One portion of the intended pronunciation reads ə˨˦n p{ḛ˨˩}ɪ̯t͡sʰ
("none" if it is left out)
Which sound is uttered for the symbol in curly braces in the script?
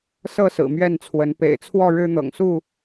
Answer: ḛ˨˩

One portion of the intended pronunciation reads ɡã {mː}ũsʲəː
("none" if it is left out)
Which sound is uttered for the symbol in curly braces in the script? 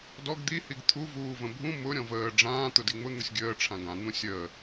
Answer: n̪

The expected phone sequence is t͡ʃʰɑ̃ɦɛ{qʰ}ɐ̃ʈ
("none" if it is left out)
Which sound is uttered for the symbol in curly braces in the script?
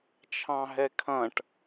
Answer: kʰ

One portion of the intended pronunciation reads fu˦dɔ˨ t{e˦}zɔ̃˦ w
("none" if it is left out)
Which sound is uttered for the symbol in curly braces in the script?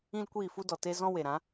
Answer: e˦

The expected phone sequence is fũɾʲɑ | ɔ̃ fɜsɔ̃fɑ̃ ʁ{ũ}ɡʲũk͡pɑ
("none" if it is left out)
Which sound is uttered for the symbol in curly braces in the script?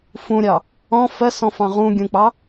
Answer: ũ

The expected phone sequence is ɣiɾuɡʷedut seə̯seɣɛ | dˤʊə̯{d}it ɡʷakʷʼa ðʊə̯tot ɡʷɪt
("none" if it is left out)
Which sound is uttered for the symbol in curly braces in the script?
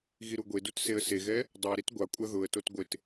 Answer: ɾ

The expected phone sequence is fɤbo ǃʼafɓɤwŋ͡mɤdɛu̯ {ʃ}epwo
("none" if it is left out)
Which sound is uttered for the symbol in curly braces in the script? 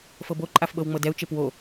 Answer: t͡ʃ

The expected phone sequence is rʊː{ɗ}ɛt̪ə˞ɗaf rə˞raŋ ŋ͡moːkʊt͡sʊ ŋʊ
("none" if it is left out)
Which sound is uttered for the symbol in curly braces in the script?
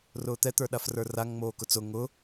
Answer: t̪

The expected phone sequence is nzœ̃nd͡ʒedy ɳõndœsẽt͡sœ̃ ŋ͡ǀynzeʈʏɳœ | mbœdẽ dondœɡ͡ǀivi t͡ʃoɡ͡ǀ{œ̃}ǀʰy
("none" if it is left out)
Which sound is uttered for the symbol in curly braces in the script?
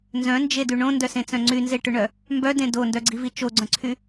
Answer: œ̃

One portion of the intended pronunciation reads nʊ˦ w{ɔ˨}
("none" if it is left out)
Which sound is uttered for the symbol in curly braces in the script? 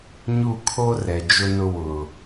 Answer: ʊ˨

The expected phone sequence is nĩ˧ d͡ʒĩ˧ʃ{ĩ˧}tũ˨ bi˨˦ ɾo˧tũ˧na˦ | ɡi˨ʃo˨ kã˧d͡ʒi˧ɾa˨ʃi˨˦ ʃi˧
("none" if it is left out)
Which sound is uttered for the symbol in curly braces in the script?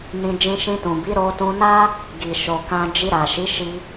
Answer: ĩ˧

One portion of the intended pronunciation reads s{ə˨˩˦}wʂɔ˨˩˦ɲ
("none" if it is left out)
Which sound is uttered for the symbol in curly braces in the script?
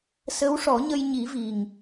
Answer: ə˧˥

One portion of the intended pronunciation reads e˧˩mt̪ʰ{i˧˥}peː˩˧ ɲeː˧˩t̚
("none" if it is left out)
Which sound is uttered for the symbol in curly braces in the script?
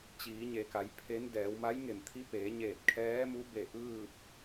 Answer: i˧˥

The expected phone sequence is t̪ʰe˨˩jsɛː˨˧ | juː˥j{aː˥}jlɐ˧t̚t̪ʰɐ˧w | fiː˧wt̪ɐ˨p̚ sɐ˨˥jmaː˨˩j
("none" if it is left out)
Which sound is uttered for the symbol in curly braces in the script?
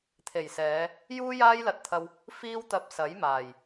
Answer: aː˥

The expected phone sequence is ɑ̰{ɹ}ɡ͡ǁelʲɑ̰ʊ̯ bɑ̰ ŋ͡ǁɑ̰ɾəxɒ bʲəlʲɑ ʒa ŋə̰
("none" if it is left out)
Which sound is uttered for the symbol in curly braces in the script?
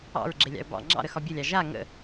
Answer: ɹ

